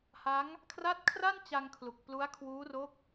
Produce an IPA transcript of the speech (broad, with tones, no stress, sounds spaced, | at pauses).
h a˦˥ ŋ | kʰ r a˦˥ t̚ kʰ r a˥˩ n t͡ɕ a˧ ŋ kʰ l u˨˩ k̚ p l u˦˥ a̯ kʰ w uː˦˥ r o˦˥ k̚